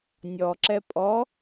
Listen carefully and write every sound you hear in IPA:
nʲɔǁɛ pʼɔ

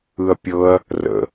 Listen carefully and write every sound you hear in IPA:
ɯɐ̯pʲɤɐ̯ | rə̰

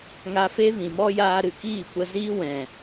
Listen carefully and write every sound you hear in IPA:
ŋa˧fe˦ vĩ˨mɔ˦ jaː˧ɾɨ˨ kiː˦˨kʷə˧ziː˦ wɛ̃˨

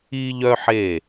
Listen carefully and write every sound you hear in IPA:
i˧ʎœ˧ħe˧˩

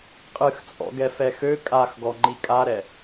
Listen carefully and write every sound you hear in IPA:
qʼɨxt͡sʼɔ̰ɡɛfɛx ø kʼaxɡɔŋ͡ǃi kʼaɾɛ

